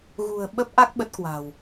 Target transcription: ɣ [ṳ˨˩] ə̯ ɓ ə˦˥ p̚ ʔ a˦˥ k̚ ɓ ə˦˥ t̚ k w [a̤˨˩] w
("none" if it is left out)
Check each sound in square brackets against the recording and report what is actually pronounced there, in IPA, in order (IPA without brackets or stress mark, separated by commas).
ṳ˨˩, a̤˨˩